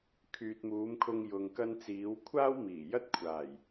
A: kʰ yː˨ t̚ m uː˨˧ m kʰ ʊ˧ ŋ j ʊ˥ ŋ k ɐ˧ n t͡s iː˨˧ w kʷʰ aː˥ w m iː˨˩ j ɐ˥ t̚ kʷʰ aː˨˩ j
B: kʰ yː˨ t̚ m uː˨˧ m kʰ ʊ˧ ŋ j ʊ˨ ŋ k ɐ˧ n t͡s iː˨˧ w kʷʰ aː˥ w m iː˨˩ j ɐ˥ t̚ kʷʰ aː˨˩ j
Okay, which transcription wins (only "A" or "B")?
B